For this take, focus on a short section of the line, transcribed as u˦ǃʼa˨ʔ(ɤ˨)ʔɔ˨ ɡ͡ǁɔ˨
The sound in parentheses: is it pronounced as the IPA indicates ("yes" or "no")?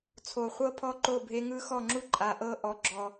no